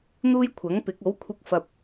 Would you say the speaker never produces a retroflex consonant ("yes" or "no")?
yes